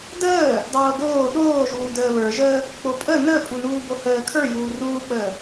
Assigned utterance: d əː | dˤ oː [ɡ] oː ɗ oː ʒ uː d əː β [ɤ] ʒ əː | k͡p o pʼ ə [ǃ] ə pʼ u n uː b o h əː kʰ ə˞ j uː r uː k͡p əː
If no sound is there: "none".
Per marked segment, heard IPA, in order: ɡ, ə˞, n

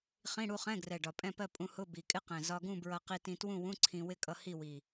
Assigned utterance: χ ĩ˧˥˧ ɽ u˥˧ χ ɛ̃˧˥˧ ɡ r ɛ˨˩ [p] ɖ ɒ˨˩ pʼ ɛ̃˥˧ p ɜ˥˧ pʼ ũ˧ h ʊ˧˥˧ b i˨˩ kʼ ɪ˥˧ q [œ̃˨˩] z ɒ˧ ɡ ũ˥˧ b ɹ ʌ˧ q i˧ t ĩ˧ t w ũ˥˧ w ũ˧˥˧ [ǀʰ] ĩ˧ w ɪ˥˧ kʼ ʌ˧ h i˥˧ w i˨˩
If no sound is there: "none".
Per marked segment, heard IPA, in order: none, ɛ̃˨˩, ǀʰ

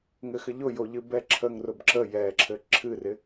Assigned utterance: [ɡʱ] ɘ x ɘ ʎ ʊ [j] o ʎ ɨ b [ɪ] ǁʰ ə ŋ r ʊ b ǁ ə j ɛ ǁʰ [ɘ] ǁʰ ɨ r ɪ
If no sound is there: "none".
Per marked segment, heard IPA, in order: ŋ, j, ɛ, ɘ

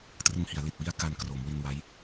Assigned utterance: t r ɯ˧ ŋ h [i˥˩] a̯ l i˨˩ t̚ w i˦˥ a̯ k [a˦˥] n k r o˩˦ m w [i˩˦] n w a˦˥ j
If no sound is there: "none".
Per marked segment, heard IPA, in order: i˩˦, a˧, i˧

